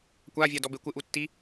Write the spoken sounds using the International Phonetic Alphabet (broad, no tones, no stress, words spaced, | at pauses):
kʷavʲadɔbe kʷɪʔutːi